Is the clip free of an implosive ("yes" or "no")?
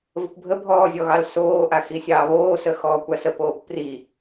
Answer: yes